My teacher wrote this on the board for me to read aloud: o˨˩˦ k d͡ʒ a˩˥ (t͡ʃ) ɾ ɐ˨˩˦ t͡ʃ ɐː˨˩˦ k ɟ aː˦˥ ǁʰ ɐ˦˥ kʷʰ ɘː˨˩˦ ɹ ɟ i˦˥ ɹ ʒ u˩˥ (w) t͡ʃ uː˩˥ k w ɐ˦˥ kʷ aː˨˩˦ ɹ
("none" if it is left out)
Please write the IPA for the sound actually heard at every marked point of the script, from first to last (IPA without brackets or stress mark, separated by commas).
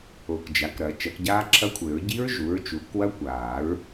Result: k, ɹ